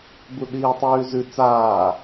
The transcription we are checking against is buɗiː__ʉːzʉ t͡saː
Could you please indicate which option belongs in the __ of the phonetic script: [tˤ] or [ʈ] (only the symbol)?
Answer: tˤ